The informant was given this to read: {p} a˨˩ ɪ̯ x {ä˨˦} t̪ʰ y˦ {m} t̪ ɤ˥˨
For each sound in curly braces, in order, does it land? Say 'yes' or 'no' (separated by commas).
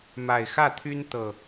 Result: no, no, no